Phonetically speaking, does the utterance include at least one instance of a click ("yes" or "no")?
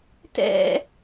no